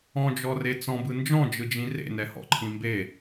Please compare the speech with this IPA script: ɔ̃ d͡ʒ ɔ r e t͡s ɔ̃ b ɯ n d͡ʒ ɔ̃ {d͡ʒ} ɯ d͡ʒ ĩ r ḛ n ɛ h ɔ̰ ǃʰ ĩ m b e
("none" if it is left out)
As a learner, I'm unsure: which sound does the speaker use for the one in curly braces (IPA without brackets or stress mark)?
d͡ʒ